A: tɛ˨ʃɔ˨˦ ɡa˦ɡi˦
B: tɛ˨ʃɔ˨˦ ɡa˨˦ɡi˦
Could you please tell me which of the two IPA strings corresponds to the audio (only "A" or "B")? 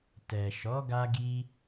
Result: A